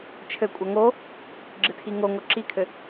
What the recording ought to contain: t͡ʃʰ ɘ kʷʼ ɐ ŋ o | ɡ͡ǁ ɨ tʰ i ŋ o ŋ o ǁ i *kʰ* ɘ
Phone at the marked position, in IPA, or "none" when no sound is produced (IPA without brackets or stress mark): kʰ